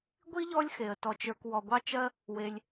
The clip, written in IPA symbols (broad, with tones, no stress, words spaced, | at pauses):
ɡʷi˥ʎɔ˦lʲ xe˩ə̯ tɔ˨t͡ʃə˞˨k wɔ˨ɡʷɑ˥ t͡ʃɜ˥ | we˨lʲ